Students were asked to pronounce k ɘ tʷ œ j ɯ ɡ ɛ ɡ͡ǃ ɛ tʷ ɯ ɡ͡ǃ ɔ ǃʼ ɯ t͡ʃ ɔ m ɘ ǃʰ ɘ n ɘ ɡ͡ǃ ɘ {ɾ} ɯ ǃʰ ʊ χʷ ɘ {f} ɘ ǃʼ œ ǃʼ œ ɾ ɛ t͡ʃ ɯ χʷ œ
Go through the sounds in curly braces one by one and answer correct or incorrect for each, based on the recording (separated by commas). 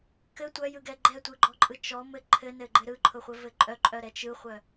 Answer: correct, incorrect